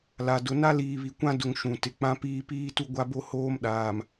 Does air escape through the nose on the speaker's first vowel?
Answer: no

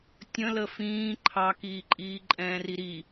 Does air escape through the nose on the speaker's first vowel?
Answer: yes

